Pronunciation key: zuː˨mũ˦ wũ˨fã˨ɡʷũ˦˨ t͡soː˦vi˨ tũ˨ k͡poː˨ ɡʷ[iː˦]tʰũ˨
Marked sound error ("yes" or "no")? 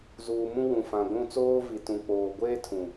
yes